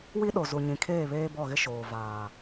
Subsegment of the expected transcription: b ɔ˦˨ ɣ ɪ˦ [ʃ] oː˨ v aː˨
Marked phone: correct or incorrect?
correct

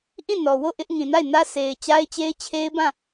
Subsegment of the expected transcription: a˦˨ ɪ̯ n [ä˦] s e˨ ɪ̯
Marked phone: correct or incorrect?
correct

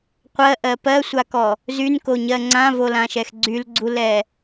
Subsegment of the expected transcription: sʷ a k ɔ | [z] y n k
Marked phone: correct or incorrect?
correct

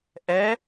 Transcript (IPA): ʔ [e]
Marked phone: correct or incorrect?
incorrect: ɛ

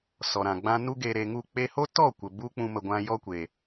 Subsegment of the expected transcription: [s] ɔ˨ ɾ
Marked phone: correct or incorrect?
correct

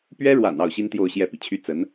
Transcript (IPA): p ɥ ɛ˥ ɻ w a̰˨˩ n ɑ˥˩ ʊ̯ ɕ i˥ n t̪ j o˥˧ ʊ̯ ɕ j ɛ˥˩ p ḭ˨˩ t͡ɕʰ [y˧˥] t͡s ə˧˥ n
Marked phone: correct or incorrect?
incorrect: y˥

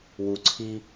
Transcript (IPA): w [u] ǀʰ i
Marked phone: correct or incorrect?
correct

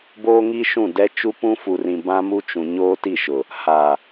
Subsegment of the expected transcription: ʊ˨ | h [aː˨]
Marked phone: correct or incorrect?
correct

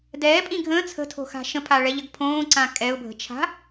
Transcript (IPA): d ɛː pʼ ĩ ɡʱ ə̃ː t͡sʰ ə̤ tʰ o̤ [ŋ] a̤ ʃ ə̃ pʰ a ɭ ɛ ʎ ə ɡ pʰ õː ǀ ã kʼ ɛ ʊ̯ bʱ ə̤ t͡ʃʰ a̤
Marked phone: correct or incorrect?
incorrect: x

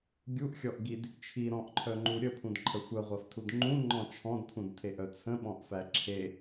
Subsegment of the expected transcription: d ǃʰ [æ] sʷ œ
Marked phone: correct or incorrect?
incorrect: ə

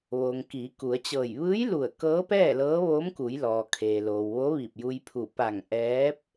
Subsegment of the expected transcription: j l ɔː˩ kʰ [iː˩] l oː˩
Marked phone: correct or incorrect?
incorrect: eː˩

